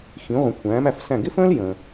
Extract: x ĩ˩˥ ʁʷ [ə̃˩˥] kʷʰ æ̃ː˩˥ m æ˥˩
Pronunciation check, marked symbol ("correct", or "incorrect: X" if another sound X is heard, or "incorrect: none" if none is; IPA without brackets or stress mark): correct